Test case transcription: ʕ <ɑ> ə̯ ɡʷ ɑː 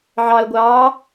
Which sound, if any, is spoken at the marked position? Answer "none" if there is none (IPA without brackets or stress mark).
ɑ